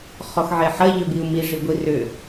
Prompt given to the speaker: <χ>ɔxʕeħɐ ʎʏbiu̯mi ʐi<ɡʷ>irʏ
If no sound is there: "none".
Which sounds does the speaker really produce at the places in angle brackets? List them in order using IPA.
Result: χ, ɡʷ

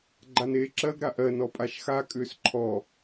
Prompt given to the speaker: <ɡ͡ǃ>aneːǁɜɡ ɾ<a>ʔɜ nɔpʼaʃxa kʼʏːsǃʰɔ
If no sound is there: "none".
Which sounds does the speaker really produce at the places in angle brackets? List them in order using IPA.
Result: ɡ͡ǃ, a

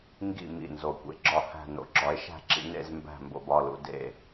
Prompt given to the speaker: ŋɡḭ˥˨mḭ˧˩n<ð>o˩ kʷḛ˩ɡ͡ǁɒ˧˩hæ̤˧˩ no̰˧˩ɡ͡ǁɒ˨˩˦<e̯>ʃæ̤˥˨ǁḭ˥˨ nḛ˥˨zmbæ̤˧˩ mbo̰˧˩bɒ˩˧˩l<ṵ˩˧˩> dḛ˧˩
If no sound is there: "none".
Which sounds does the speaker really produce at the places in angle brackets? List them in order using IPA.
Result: z, e̯, ṵ˩˧˩

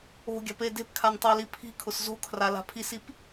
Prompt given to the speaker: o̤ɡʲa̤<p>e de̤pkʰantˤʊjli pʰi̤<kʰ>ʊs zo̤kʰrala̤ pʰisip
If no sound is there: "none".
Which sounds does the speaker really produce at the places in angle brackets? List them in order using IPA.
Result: p, kʰ

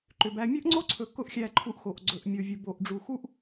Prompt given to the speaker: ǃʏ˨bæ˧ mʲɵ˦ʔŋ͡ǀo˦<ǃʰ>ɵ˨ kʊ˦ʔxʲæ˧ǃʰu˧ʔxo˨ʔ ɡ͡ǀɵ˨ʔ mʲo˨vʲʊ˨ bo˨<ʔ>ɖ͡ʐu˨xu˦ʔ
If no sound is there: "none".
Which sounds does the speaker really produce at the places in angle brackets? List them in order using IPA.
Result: ǀʰ, ʔ

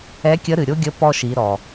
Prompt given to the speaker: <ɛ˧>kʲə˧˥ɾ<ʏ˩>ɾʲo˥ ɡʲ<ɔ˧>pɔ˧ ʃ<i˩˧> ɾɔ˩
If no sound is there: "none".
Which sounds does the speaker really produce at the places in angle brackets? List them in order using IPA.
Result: ɛ˧˥, ɨ˩, ə˧, i˩˧

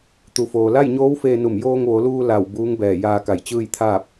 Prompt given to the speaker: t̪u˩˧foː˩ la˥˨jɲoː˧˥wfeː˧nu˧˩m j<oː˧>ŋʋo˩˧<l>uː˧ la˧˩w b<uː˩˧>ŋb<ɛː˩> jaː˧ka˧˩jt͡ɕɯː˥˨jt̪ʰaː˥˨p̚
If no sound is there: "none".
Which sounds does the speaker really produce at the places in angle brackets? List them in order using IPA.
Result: oː˧, l, uː˧˥, ɛː˧˩

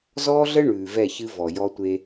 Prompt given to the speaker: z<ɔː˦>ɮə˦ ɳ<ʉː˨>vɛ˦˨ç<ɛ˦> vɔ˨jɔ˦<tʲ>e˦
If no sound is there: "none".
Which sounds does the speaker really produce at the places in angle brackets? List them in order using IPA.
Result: ɔː˦, ʉː˨, ɨ˦, tʷ

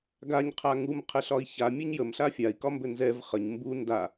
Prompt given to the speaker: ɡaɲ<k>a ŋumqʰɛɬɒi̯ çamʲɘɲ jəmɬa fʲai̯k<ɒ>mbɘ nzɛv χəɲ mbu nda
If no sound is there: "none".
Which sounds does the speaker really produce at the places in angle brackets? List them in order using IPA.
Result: qʰ, ɒ

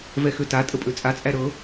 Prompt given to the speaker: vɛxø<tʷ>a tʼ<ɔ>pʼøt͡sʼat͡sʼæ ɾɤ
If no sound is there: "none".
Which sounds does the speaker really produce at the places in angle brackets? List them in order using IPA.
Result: t, ə

